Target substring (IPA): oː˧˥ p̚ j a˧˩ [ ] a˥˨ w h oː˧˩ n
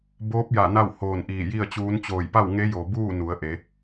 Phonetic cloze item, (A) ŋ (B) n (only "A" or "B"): B